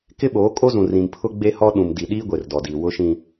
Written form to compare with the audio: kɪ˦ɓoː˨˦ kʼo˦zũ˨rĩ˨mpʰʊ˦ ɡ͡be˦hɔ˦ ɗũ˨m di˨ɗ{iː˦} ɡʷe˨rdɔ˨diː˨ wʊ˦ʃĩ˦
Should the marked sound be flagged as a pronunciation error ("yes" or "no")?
no